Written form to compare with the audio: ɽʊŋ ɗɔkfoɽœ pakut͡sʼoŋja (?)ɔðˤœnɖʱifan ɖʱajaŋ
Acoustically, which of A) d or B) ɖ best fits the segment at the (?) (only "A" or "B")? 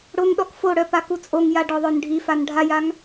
B